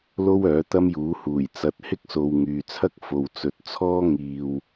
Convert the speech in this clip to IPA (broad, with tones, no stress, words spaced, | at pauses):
lo˥wœː˨˥ t̪ɐ˥mjuː˨˥ huː˨˩jt͡sɐ˨˥t̚hɪ˥k̚so˨w ŋyː˨t͡sʰɐ˥k̚ fo˨wt͡sɵ˨t̚t͡sʰɔː˥ ŋiː˨w